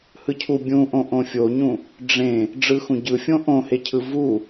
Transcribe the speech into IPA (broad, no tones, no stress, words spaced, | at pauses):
hɯcʰu bʲũʔõ ʔõfʲoɲũ | ɖ͡ʐẽ | ɖ͡ʐɯxũɟɯfʲõ ʔõhecʰɯ vu